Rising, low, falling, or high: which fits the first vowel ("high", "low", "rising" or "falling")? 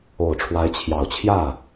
low